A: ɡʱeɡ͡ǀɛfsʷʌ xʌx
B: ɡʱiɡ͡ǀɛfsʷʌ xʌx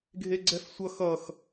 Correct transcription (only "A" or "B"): A